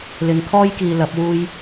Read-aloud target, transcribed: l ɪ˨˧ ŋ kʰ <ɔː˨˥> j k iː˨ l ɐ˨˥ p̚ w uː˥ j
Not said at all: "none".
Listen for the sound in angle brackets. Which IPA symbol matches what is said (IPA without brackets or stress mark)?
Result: ɔː˥